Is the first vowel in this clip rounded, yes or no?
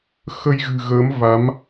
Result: no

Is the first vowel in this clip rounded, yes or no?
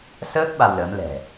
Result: no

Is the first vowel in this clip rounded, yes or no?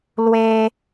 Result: no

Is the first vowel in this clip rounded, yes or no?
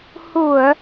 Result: yes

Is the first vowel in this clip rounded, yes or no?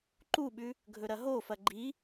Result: yes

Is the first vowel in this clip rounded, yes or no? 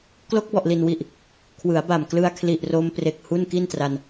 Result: yes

